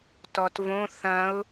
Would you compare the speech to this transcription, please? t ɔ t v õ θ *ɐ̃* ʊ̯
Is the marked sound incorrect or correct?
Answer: correct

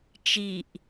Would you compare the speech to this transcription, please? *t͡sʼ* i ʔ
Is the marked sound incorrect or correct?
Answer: incorrect: t͡ʃ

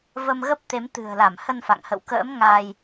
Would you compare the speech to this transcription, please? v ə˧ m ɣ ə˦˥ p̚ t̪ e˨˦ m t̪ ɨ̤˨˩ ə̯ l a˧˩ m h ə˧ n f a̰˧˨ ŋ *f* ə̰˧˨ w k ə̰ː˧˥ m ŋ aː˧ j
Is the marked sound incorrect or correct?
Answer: incorrect: h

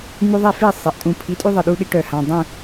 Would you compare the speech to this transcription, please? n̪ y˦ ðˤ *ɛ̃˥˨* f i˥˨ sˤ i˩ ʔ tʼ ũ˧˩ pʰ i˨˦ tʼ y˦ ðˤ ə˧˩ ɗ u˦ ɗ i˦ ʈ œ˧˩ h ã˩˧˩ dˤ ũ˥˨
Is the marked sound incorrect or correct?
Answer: incorrect: ɛ˥˨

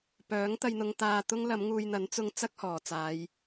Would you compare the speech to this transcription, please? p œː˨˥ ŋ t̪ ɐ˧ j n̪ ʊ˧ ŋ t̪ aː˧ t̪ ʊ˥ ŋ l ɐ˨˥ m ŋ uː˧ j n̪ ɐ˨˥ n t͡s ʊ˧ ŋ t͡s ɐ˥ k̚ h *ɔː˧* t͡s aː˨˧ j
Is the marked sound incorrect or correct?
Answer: incorrect: ɔː˨˩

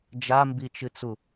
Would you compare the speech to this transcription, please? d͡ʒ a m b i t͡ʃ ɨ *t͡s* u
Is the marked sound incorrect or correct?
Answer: correct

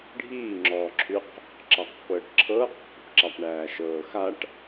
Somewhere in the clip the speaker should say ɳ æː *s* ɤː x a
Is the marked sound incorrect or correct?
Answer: incorrect: ʃ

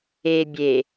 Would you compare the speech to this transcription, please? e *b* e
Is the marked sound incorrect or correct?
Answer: incorrect: bʲ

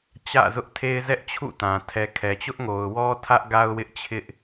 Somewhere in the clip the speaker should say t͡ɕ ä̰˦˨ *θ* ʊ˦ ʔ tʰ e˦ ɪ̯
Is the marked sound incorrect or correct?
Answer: incorrect: z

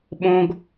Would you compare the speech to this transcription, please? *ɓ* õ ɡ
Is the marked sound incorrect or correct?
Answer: correct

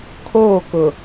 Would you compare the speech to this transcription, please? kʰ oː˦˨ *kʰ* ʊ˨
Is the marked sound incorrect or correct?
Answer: incorrect: k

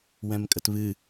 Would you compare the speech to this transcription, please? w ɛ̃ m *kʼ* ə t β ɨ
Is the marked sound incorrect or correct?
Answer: correct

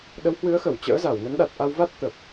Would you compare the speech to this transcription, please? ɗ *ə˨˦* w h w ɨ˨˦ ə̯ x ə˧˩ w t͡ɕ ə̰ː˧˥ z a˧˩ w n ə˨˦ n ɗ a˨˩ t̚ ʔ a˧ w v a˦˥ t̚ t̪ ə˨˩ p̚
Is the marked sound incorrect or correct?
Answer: correct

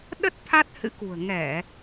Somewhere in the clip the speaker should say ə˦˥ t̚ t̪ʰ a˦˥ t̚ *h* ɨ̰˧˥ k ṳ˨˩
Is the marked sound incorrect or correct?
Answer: correct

